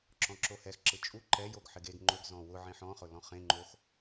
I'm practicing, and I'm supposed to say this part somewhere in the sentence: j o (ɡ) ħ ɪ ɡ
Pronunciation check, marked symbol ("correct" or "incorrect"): correct